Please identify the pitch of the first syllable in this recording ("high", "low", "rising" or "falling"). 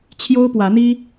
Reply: high